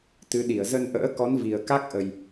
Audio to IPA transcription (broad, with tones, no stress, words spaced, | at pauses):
t̪ɨ˨˦ɗi˧˩ə̯ zə˧n ʔə̰ː˧˥kɔ˨˦n vi˨˩ə̯ka˦˥k̚ʔə˨˩j